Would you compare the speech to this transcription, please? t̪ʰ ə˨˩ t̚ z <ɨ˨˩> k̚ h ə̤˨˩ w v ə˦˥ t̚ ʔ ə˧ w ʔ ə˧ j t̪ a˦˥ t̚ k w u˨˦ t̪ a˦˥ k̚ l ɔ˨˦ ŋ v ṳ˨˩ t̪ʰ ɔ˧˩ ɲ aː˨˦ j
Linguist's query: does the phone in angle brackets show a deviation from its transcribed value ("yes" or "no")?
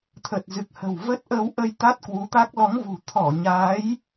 no